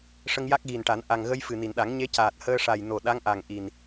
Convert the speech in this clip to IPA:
ʂə˧ŋja˦˥k̚ɣi˨˩nʈa˨˩˦n ʔa˨˩ŋɣə˧j fɨ˨˩ni˨˩˨nɗa˨˩˦ŋ ɲe˧˥caː˨˩t̚ həː˧ʂa˨˩j no˨˩ɗa˧˥ŋʔa˨˩ŋ ʔi˨˩n

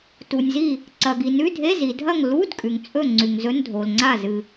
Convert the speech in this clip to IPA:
tu˨nʲzi˥˨ | ǀɐ˨ɡi˨nʉ˧˥˧dʱe˧˥˧ zi˨dʱɐ˥˨ŋ lu˧˥˧d kʼʉ˨ŋt͡sʼɵ˥˨ŋ͡ǀʉ˨ŋ zɵ˧˥˧ndʱo˨lŋ͡ǀa˥˨ zɨ˨

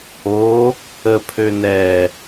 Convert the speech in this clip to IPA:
o | əpʰø nɛ

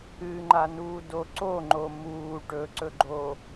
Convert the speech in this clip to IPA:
ɨŋ͡ǃanuːdo ǀoŋ͡ǃo muː ʈɵǀɵɡ͡ǃoː

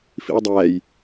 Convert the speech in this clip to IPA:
fḭwdˤæːj

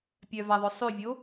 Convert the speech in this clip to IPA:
pʲœvæðˤœ sˤʉvʲo

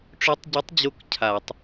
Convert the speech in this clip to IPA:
ʈ͡ʂø˧˥tˤɟo˧˥tˤd͡ʑo˧˥k cʰa˧˩˧tˤ

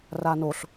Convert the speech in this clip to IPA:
ranoɬ

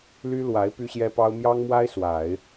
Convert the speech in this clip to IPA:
ly˥lwa˧˥ɪ̯ py˥ɕjɛ˥pɑ˥ʊ̯ mjɑ˥ŋmwa˥ɪ̯ swa˨˩˦ɪ̯

